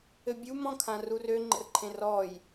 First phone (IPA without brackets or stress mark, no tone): ɘ